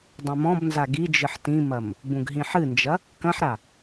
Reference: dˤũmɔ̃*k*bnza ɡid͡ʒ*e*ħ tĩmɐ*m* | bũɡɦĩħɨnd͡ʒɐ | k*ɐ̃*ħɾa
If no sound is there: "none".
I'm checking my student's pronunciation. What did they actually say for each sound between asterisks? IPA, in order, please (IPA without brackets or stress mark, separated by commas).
none, ɨ, m, ɐ̃